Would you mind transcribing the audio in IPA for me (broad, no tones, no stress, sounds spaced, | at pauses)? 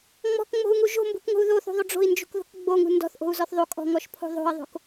ŋ͡m ɔ̤ k ŋ͡m o̤ u̯ ŋ u ʒ o̤ m b ṳ k ŋ o̤ u̯ ð o θ ṳ ðˤ o ɖ͡ʐ o̤ i̯ n d͡ʒ ṳ k ð o̤ k ɡ͡b o ŋ ṳ n d ɔ̤ θ ʔ o̤ u̯ z ɔ θ ðˤ o kʼ ɔ̤ ŋ ɔ ʃ pʰ o̤ ðˤ o̤ i̯ ðˤ o̤ k